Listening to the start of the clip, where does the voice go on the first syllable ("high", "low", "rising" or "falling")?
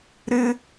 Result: high